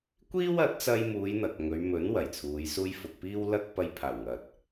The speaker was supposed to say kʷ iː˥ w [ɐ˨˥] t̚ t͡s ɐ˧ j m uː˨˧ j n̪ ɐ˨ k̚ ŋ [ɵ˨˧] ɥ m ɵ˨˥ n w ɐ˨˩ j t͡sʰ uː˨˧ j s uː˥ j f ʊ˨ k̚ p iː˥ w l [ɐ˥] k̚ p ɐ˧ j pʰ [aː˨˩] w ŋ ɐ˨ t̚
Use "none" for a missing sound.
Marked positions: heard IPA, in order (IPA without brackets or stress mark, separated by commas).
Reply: ɐ˨˥, ɵ˨˧, ɐ˥, aː˨˩